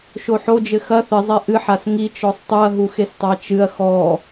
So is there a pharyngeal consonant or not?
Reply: yes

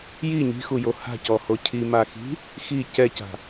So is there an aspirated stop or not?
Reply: yes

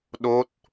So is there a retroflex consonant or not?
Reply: no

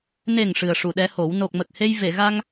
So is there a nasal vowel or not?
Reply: no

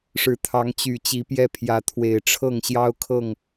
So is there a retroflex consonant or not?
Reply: yes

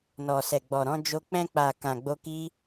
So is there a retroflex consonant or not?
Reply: no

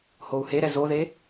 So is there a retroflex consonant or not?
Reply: no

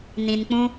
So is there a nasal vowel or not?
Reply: yes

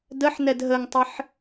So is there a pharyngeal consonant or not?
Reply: yes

